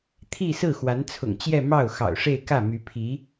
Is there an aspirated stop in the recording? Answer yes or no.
yes